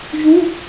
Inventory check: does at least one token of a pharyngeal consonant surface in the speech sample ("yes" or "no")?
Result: no